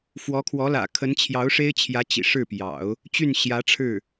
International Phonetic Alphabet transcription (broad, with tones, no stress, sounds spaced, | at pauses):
f w ɔ˧˥ kʰ w ɔ˧˥ l ä̰˨˩ kʰ ə˧˥ n t͡ɕʰ j ɑ˧˥ ʊ̯ ʂ e˥ ɪ̯ t͡ɕʰ j ä˧˥ t͡ɕ ḭ˨˩ ʂ ɻ̩˥˩ p j ɑ̰˨˩˦ ʊ̯ | t͡ɕ y˥˩ n ɕ j ä˧˥ ʈ͡ʂʰ ɻ̩˥˩